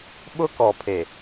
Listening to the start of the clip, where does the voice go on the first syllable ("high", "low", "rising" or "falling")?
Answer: high